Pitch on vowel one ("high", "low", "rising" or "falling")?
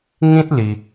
high